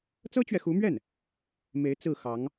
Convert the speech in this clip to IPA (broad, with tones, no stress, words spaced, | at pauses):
t͡sɤ˥t͡ɕɥɛ˨xu˧˥mɥɛ˥˩n | me˧˥ɪ̯ t͡sɹ̩˥˩xɑ˧˥ŋ